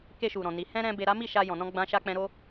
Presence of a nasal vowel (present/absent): present